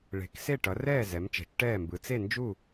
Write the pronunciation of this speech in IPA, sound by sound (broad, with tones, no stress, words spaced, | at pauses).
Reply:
ɭe̤˩˥k se˥˩ʈʌ˩˥rɛː˥˩ zɛ˩˥mt͡ʃɛ̤˩˥t͡ʃʈɛː˥˩mbɯ˩˥ t͡se˥˩nd͡ʒu˥˩